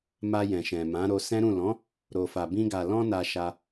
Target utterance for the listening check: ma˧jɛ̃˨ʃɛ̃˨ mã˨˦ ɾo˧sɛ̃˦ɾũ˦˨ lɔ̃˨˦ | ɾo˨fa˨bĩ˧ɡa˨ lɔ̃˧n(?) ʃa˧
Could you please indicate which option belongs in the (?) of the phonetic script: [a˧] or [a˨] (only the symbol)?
a˨